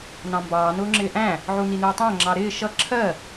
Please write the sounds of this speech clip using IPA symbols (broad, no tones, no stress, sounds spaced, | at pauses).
n ɑ̃ m b ɑː n ʊː ŋ͡ǁ ɪː ʔ æ̃ | ʕ u n i n uː tˤ æ̃ ŋ͡ǁ ɑ ɾ ɪː ʃ ʌ ǁʰ ɜ